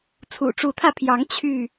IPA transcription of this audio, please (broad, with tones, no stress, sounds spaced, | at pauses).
t͡sʰ ṵ˨˩ ʈ͡ʂ u˨˦ t̪ʰ ä˧ pʰ j ɑ˨˦ ŋ t͡ɕʰ y˥˨